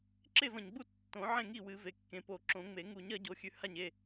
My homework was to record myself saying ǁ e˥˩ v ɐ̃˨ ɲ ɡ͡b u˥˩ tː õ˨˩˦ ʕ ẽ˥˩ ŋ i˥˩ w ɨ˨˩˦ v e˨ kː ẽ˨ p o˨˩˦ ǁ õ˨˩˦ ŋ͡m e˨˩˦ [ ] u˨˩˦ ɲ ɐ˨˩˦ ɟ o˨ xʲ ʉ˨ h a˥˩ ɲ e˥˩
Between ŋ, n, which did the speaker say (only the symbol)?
ŋ